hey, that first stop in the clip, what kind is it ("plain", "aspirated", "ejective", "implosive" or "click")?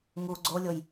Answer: click